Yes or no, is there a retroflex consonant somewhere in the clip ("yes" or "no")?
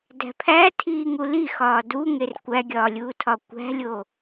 no